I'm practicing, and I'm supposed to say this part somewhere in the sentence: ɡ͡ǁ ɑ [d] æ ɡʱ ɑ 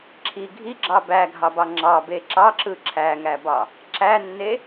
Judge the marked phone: incorrect: b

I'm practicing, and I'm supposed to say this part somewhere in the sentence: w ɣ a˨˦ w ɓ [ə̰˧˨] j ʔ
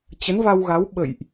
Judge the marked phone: correct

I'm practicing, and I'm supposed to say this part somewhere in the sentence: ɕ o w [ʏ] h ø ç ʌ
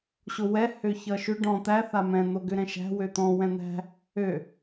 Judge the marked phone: incorrect: ɛ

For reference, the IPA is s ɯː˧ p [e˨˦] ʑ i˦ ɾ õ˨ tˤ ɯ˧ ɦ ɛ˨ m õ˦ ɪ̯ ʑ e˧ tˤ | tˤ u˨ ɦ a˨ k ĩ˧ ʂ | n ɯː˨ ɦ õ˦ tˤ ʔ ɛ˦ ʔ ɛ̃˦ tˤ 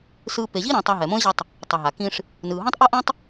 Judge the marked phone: incorrect: e˨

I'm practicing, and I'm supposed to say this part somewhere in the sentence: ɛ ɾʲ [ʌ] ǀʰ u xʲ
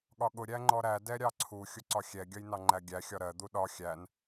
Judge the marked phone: incorrect: ɑ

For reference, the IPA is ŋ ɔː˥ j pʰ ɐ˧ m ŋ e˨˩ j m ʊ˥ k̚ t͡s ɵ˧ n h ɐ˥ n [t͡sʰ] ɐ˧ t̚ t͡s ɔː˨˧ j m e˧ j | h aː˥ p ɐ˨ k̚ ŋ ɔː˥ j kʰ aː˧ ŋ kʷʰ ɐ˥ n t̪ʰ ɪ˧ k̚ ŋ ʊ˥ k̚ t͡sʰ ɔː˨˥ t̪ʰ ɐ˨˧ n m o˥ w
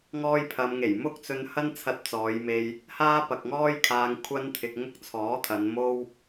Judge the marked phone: correct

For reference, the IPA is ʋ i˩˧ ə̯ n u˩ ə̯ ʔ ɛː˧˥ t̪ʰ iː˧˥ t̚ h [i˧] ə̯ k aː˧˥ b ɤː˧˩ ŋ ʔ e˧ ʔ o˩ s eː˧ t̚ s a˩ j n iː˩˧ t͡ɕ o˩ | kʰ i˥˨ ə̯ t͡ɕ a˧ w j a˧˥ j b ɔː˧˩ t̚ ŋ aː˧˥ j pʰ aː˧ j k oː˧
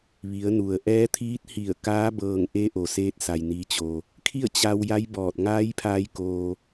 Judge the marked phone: incorrect: i˧˩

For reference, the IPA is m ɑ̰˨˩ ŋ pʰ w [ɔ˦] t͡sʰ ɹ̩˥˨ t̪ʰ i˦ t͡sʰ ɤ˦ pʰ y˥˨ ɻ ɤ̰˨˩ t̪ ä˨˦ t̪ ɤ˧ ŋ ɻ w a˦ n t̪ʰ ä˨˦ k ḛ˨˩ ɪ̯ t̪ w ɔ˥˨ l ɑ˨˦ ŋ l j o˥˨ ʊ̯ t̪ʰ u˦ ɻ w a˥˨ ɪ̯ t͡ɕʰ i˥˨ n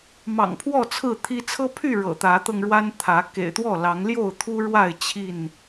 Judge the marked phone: incorrect: ɔ˥˨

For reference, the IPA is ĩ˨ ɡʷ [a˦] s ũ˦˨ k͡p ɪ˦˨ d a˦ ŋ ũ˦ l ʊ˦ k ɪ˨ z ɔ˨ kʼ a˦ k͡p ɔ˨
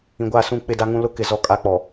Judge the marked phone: incorrect: a˦˨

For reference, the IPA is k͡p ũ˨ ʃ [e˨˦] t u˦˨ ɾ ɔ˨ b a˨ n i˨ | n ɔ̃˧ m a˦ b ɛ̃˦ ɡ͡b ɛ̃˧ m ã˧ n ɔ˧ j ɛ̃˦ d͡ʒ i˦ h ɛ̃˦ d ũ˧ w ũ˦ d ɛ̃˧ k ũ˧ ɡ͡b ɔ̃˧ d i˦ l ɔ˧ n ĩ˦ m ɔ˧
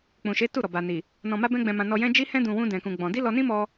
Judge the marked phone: correct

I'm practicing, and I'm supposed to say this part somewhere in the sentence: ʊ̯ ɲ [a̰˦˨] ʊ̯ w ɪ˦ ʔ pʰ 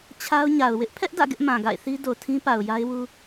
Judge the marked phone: incorrect: a˨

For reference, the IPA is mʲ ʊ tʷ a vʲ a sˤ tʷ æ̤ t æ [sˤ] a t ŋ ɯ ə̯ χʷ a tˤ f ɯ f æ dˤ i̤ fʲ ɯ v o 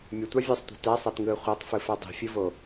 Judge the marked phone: correct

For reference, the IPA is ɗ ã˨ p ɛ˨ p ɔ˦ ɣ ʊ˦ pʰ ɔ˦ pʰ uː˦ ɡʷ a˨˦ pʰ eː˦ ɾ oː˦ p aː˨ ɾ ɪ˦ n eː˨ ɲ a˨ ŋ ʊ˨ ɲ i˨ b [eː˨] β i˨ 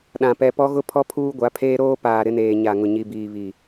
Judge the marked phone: incorrect: iː˨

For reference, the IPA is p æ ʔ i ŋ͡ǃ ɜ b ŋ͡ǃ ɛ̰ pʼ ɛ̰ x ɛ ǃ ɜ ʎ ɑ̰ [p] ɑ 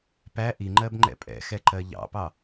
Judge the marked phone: correct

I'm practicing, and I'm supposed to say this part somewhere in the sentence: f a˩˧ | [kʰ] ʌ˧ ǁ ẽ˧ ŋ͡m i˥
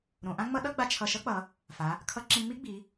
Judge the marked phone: correct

